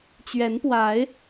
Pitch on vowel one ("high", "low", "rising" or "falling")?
rising